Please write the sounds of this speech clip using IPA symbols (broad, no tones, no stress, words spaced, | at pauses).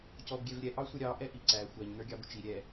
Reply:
cɔbɡʲɛvɾʲɛ ʔɑsʷəɾʲɑ ʔɛʔiǀæ xʷæɲ nə˞ɡʲɑbʊt͡ʃi ɾʲɛ